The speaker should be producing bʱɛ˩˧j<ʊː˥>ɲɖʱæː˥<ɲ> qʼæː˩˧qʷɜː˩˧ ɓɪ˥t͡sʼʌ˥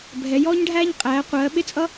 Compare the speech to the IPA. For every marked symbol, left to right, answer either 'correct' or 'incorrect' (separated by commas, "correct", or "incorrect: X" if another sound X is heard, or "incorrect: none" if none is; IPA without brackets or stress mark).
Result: incorrect: ɔː˥, correct